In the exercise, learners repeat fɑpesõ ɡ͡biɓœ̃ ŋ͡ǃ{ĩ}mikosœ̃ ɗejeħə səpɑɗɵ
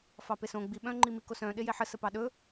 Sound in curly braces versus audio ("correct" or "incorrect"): incorrect